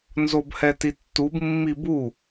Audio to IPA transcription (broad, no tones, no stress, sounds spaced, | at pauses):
n z o b h ɛ t i tː u b mː i b u